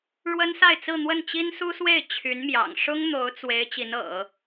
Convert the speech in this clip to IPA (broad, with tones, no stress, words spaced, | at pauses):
ɻwə˥nsa˥˧ɪ̯t͡sɹ̩˥˧ n̪wə˥˩nt͡ɕi˥nsu˥swe˥˩ɪ̯ t͡ɕʰy˧˥nmjɑ̰˨˩ŋ ʂʊ˥ŋ n̪o˧˥ʊ̯t͡swe˧˥ɪ̯ t͡ɕi˧˥nɤ̰˨˩˦